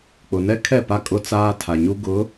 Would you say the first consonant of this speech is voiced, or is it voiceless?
voiceless